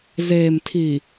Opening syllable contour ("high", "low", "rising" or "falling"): low